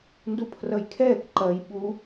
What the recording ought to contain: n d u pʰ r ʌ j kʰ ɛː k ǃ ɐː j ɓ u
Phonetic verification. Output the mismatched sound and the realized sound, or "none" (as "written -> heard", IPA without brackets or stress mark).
none